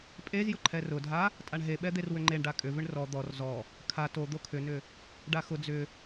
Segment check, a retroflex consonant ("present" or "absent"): present